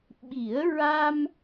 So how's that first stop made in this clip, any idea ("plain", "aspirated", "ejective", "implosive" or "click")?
implosive